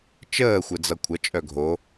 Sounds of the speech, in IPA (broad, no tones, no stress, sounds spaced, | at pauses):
t͡ʃ əː xʷ ɘ d͡z ʌ kʷʰ ʌ t͡ʃʼ œ ɡʱ o